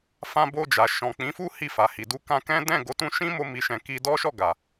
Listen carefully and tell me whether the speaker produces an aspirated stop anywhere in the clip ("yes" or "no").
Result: no